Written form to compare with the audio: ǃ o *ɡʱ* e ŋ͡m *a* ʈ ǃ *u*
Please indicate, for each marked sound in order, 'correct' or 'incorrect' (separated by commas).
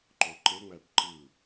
incorrect, incorrect, incorrect